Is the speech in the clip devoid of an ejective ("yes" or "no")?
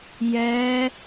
yes